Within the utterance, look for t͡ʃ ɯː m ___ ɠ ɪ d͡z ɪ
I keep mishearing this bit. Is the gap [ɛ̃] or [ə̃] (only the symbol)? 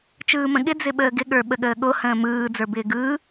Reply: ə̃